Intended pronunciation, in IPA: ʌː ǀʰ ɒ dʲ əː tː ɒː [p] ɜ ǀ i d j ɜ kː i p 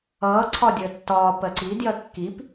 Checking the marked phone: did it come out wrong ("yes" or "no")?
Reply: no